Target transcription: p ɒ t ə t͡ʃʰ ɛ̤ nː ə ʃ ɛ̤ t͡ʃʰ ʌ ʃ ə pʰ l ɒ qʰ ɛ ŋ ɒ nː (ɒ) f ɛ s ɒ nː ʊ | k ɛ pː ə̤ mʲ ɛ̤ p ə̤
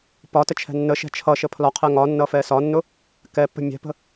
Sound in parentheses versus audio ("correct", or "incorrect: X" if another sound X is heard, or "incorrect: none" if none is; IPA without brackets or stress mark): incorrect: ʌ